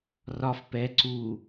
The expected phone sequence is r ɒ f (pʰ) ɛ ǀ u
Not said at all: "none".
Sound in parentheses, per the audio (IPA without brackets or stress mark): p